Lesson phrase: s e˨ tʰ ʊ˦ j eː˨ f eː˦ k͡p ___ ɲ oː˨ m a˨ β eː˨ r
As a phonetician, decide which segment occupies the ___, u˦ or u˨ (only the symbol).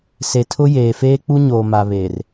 u˦